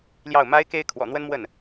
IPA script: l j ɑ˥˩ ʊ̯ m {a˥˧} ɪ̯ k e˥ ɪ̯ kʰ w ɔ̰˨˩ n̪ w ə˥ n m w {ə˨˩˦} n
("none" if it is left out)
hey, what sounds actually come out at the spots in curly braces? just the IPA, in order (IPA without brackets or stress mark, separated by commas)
a˥, ə˥˩